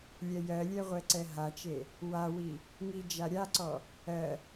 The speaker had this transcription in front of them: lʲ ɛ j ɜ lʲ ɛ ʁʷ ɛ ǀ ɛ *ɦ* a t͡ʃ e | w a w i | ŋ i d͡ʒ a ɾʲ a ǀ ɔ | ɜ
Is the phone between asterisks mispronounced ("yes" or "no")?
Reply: no